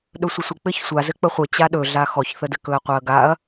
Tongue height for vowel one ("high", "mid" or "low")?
mid